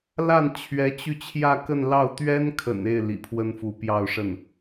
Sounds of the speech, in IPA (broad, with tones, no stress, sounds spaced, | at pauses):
l a˥˩ n t͡ɕʰ ɥ ɛ˧˥ t͡ɕ y˧ t͡ɕʰ j ä˥˧ k ə˥˧ n l ɑ˥˩ ʊ̯ t̪ ɥ ɛ˥ n kʰ ə̰˨˩ n e˥˩ ɪ̯ l ḭ˨˩ pʰ w ə˥ n f u˧˥ p j ɑ˥˧ ʊ̯ ʂ ə˥˩ n